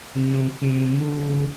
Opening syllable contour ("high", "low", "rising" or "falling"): high